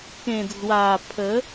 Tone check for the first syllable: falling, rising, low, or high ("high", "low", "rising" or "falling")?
low